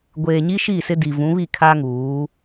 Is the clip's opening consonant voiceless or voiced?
voiced